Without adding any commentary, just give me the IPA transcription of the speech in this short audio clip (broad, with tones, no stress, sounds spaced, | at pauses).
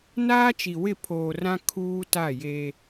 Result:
n aː˦ t͡ʃ i˨ w ɪ˦˨ pʰ oː˨ r ã˦ kʰ uː˦ t a˦˨ j e˦